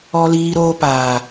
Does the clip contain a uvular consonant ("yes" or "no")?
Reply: no